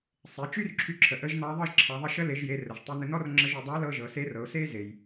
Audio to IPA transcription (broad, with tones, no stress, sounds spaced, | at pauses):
sˤ e˩˧ t͡ʃ y˥ r ǁʰ y˧ ǁʰ ə˩ ʔ ə˧˥ ʒ n ɑ˧˥ ðˤ ɤ˥ ʒ ǁʰ ɑ˩˧ ðˤ ə˧ ʃ ə˧˥ l e˩˧ ʒ j e˩˧ r ə˩ ʒ tˤ y˧ n ə˧ n ɔ˥ r ŋ͡ǁ ə˧ ʒ y˩˧ dˤ ɑ˧˥ l ɤ˧ ʒ ɤ˩˧ s e˧˥ r ɤ˩˧ ʊ̯ s e˥ z e˩ j